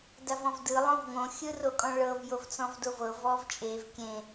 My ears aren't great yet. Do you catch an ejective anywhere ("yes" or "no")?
yes